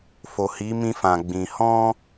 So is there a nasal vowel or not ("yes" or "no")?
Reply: yes